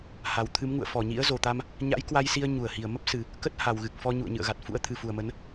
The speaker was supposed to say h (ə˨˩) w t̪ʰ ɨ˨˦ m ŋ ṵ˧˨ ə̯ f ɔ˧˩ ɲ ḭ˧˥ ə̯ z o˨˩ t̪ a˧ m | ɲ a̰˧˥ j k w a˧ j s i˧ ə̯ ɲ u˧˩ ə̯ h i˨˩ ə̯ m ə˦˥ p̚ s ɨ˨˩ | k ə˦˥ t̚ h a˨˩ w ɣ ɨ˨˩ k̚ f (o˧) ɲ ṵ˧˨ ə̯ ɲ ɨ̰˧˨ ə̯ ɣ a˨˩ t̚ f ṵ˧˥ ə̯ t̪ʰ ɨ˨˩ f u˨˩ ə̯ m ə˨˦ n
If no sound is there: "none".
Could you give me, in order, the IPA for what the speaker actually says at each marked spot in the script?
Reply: a˨˩, ɔ˧

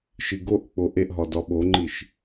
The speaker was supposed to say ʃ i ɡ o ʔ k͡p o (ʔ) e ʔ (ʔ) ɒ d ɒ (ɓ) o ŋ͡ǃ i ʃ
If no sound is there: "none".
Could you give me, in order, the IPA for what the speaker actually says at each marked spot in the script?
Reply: ʔ, ɦ, ɓ

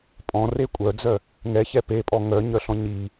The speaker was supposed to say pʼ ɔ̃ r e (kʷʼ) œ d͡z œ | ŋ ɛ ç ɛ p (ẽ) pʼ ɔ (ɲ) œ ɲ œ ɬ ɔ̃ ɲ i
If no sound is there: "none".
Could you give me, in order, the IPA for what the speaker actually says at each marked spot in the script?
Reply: kʷʼ, e, ŋ

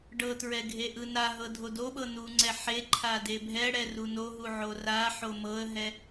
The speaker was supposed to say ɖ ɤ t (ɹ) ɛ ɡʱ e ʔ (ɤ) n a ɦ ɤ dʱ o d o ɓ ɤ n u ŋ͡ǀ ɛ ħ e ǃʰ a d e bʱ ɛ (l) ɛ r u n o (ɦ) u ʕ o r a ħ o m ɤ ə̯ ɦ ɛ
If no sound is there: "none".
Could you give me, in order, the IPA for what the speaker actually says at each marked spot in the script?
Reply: ɹ, ɯ, ɽ, ɦ

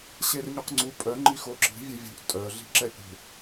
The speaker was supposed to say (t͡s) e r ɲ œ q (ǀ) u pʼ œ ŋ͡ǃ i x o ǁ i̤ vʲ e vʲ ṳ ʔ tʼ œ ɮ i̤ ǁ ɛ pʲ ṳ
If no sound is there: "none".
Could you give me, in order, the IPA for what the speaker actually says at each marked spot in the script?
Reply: ɕ, ŋ͡ǀ

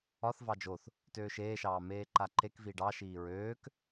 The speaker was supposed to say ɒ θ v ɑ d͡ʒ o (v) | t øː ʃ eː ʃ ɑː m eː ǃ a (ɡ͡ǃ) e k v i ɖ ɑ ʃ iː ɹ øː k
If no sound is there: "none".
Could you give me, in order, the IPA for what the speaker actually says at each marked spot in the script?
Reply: θ, ǃ

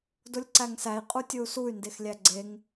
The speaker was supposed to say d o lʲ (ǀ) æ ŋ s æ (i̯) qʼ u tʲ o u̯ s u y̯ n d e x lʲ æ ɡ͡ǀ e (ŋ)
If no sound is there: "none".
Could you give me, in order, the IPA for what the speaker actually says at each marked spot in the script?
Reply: ǀ, i̯, ŋ

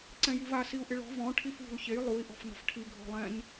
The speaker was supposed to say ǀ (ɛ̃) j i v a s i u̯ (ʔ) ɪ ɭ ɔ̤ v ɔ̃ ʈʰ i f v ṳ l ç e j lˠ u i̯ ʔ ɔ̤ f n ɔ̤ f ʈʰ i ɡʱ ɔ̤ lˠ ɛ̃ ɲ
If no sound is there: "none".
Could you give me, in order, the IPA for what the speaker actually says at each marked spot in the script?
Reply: ɛ̃, ʔ

